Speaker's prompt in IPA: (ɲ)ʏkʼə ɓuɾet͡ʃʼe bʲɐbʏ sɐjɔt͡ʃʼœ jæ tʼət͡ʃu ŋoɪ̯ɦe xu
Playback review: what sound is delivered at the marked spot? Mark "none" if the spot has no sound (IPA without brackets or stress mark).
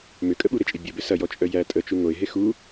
m